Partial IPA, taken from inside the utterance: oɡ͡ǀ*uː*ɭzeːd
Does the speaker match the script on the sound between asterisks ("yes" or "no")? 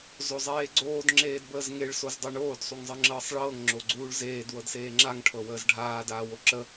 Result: yes